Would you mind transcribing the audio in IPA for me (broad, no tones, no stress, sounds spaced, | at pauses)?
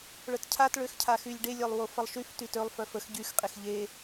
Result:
ɭ œ t cʰ a t ɭ ø x cʰ a x y lʲ ɖ e lʲ œ lˠ w o f ə lˠ ʃ y f t y t ø lˠ f œ f ə x ɟ y x qʼ e x ʎ e